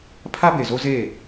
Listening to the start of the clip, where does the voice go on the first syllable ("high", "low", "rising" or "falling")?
high